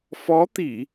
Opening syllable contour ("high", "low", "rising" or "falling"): rising